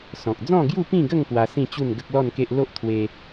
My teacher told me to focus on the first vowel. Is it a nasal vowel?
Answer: yes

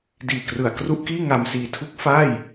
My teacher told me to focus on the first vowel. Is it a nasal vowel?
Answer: no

